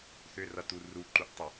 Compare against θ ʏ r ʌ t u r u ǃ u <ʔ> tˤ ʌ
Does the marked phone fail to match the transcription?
no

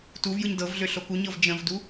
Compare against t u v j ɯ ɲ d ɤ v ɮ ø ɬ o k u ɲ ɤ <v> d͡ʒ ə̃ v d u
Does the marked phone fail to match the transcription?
no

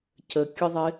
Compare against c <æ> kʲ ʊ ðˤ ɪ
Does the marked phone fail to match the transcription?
yes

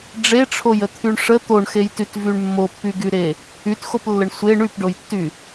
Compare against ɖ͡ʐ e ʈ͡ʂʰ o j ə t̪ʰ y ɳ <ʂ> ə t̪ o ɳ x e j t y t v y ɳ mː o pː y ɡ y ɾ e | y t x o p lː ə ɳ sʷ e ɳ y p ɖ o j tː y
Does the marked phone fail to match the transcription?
no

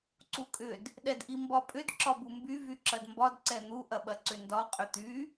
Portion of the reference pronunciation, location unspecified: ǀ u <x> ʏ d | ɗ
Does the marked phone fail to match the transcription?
yes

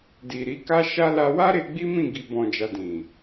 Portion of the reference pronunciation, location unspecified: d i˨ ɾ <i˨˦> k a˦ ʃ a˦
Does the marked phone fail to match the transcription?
no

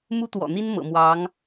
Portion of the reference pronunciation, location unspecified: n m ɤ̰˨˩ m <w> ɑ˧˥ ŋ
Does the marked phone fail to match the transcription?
no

